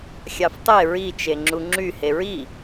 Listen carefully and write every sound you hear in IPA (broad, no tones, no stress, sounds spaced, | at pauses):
xʲ ɑ f tˤ e ɹ i t͡ʃ e ŋ͡ǁ u ŋ͡ǁ y h e ɹ i